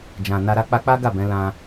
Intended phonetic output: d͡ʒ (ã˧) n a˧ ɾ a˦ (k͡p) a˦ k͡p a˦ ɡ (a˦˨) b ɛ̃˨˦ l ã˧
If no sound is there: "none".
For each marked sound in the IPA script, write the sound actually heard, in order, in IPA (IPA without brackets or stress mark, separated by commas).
ã˨, k͡p, a˦˨